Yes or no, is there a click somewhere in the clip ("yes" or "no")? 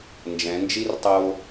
no